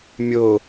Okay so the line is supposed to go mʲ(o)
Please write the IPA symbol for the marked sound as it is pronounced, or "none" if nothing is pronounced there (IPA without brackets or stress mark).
o